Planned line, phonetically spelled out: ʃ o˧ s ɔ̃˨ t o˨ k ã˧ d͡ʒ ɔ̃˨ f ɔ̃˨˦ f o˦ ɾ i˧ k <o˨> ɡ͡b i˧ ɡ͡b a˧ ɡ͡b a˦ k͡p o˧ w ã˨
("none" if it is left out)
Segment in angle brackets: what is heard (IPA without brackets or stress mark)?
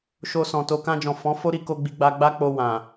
o˧